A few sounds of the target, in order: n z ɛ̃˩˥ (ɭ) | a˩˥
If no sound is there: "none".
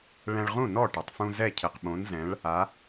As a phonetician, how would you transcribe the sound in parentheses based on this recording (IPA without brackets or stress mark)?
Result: ɭ